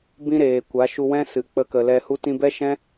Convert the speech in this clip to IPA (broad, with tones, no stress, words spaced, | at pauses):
bĩ˦ɾeː˨ kʷa˨˦ʃu˧wɛ̃˦ sɨ˨k͡pə˧kə˨lɛ˧ hu˧tĩ˧bɛ˦ʃɛ̃˦